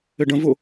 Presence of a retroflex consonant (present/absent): present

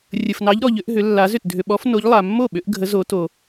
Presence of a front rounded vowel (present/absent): present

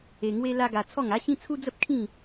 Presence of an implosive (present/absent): absent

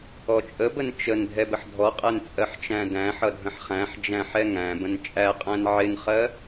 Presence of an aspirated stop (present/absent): absent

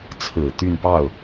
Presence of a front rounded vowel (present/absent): present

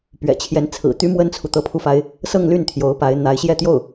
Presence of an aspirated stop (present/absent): present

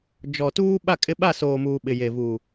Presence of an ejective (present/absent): present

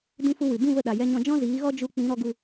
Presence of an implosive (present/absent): present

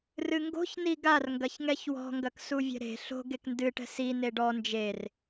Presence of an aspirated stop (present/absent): absent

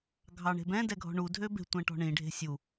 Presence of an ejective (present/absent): absent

